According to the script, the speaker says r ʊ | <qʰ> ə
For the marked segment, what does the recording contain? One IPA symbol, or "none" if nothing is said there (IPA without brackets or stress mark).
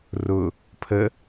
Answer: pʰ